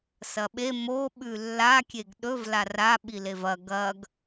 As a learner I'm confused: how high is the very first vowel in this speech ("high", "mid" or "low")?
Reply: low